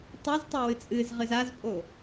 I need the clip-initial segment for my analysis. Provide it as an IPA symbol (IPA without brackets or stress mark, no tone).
tˤ